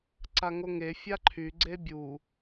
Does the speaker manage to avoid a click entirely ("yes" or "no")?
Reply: no